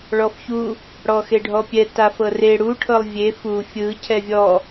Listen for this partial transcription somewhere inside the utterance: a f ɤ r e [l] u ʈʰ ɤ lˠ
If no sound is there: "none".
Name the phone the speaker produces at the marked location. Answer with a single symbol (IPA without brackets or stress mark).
ɽ